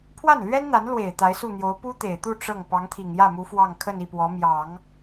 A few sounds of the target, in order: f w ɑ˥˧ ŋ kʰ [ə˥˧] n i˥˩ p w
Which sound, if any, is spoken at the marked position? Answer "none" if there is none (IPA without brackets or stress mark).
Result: ə˥˧